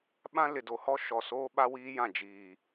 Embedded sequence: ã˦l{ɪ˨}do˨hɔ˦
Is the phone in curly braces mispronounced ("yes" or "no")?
no